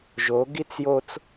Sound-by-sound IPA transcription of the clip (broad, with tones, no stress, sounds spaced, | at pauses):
ʒ o˨˦ ɡ i˦ t͡s j o˦ t͡s